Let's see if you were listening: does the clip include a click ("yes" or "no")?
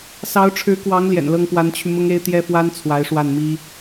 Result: no